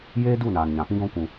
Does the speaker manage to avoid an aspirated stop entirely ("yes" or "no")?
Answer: yes